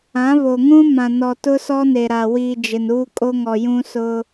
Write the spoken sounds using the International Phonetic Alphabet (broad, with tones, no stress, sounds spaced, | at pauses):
ã˨˦ β o˨ ŋ ũ˦ m ã˨ n ɔ˨ t ʊ˦ s ɔ˦ n e˨ ɾ a˨ w i˨ d͡ʒ ɪ˨ n uː˦ kʼ o˦ ŋ ɔ˨ j ũ˦ s ʊ˦